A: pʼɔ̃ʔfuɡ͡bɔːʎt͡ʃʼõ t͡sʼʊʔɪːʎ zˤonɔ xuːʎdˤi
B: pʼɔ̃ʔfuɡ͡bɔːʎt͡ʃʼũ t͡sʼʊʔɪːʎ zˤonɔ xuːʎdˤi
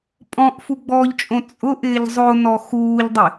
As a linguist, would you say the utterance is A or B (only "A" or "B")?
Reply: A